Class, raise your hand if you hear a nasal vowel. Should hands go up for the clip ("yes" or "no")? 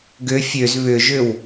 no